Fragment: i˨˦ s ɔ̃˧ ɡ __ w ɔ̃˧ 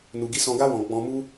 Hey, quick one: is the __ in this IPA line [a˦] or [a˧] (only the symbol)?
a˦